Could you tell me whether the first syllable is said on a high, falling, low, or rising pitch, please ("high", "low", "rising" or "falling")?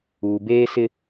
low